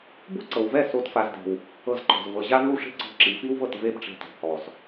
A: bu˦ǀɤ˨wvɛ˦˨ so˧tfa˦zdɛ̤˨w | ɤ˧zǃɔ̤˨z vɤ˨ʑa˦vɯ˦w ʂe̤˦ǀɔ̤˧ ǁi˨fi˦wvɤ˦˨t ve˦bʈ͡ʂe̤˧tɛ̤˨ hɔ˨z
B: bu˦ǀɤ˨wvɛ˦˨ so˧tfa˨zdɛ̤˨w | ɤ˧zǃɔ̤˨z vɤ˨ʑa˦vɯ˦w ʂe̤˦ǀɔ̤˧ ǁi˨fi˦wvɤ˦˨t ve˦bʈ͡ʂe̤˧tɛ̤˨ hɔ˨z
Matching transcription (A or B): B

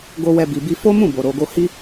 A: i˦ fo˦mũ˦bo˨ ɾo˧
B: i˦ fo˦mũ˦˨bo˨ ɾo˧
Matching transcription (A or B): B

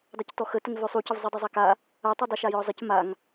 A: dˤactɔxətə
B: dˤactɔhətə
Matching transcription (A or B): A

